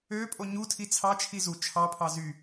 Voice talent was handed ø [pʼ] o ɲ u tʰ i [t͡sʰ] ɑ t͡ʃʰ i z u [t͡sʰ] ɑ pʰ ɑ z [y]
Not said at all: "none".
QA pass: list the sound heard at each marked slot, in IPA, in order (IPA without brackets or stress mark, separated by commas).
pʼ, t͡sʰ, t͡ʃʰ, y